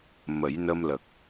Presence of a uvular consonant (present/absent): absent